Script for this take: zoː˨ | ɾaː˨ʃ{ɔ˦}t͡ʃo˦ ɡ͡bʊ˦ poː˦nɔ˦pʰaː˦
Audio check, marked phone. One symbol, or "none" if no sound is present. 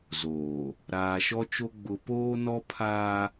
ɔ˦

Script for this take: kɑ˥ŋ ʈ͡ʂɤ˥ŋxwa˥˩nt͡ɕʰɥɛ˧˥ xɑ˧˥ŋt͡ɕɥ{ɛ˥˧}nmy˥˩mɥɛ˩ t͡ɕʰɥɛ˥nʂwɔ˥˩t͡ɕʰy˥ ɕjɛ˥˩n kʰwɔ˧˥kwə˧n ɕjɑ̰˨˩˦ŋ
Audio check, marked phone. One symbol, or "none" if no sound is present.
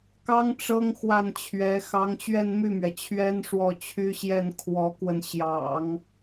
ɛ˥˧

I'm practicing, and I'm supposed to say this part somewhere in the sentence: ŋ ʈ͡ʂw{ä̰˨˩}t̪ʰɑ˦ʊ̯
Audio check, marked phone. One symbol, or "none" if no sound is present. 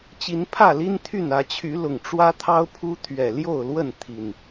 ä˦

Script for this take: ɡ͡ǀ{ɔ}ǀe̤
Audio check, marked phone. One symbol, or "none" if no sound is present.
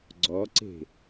ɔ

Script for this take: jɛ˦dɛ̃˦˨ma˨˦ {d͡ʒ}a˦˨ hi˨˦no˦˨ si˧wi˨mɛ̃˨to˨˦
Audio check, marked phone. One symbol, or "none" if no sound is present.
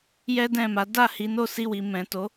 d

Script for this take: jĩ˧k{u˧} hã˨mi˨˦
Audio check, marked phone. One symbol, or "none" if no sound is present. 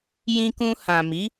ũ˧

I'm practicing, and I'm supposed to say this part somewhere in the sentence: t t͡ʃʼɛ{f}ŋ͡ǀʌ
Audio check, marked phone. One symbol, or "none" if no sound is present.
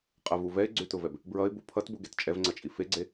v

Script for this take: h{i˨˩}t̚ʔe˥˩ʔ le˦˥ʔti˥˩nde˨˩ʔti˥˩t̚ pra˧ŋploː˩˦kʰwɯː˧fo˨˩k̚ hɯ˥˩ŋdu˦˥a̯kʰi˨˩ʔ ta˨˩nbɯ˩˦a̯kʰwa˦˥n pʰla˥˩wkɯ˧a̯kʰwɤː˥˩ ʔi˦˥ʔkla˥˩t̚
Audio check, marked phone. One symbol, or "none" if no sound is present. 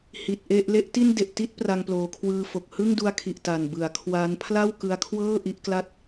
i˨˩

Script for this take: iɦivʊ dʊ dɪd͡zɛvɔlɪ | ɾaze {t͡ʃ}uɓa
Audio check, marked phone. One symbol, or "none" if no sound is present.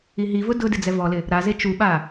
t͡ʃ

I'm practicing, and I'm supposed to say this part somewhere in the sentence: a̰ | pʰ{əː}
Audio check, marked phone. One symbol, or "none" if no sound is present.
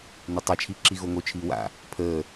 əː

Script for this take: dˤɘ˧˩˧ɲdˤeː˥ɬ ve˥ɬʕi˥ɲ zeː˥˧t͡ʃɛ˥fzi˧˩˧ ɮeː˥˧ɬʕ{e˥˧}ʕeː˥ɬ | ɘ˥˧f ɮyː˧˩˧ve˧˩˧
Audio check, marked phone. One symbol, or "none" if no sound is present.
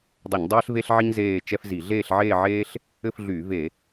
eː˥˧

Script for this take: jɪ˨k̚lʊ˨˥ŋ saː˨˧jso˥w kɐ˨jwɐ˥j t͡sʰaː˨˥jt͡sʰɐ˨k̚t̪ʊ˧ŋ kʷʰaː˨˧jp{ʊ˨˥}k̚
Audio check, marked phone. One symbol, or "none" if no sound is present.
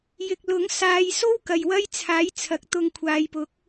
ʊ˨˥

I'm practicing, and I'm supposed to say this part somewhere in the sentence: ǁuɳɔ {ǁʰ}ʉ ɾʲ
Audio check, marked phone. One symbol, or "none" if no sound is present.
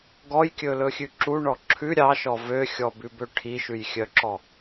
ǁʰ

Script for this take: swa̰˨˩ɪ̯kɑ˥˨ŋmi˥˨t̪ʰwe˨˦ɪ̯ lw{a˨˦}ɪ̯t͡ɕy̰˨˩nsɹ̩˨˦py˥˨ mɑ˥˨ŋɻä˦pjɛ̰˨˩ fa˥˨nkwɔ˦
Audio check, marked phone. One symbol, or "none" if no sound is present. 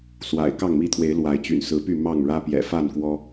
a˨˦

